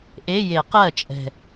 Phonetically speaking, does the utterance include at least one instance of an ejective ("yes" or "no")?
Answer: yes